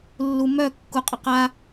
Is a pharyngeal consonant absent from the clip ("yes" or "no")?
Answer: yes